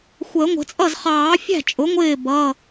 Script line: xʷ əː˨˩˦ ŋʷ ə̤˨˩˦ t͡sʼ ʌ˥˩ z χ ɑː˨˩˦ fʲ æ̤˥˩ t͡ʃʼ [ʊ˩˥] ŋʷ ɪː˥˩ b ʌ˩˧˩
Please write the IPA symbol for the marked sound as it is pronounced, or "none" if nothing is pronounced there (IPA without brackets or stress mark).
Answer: ʊ˩˥